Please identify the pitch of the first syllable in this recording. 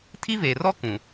high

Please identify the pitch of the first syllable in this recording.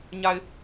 low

